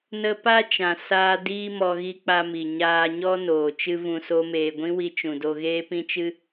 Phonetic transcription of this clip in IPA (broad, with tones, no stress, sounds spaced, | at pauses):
n ə˧ p a˦ t͡ʃ ã˨ s aː˧ d iː˦ m ɔ˧ ɣ i˧ k͡p a˧ m i˨ ɲ aː˧ ɲ ɔ˦ n oː˨ t͡ʃ ɨ˦ v ũ˧ s o˦ m eː˧ ɡʷ ĩ˦ w i˧ t͡ʃ ũ˨ d o˧ ɣ eː˦ p ĩ˦ t͡ʃ ɨ˦